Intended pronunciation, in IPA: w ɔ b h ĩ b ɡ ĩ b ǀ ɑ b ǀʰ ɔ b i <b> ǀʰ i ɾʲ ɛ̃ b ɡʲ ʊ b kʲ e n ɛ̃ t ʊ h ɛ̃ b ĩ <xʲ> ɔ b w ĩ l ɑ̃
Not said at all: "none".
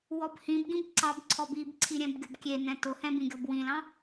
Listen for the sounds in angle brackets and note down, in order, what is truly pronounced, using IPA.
b, ɡʲ

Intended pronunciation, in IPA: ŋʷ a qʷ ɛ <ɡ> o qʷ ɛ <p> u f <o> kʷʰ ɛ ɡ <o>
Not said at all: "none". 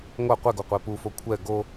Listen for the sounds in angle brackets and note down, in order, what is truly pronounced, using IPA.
ɡ, p, o, o

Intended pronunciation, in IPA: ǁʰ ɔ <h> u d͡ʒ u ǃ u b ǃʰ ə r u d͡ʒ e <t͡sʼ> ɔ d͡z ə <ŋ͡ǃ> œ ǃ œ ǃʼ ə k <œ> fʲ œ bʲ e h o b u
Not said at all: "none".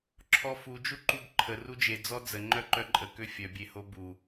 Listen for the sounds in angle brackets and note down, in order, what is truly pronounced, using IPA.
f, d͡z, ŋ͡ǃ, ø

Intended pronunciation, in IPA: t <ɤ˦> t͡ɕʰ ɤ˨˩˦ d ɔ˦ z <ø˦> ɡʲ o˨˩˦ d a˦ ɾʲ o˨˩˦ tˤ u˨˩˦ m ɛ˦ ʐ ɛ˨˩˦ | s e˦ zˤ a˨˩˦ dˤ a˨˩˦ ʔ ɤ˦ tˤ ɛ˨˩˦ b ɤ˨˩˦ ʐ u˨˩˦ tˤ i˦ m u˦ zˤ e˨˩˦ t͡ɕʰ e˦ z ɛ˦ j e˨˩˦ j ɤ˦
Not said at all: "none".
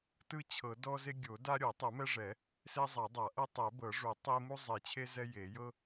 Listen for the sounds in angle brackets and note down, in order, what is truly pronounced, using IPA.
ɯ˦, e˦

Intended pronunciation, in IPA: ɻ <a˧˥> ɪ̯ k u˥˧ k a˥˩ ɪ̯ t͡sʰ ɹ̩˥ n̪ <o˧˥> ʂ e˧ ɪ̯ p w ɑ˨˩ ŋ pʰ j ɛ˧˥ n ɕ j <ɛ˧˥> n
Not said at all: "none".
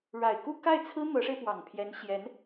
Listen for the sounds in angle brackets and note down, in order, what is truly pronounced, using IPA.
a˨˩, ɤ˧˥, ɛ˧˥

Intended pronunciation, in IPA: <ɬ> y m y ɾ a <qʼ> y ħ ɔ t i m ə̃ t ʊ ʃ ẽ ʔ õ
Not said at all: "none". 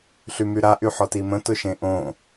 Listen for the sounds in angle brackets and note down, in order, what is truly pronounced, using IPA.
ɬ, ʔ

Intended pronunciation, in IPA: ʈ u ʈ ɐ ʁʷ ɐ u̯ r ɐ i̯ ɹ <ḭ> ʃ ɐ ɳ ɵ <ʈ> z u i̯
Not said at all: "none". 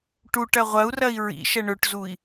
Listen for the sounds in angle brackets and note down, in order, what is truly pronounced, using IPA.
ḭ, ʈ

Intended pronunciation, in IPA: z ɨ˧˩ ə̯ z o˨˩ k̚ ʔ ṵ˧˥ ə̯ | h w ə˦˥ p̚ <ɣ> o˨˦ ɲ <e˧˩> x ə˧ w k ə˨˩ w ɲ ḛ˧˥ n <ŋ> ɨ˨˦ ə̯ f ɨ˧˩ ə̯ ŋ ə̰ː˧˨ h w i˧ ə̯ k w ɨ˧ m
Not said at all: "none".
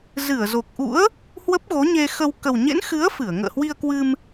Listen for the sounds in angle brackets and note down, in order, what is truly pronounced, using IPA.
ɣ, e˧, x

